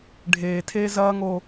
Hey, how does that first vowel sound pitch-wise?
low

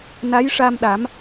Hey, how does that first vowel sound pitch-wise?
rising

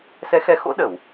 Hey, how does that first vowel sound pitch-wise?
rising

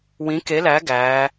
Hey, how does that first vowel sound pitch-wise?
rising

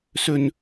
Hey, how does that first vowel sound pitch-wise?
high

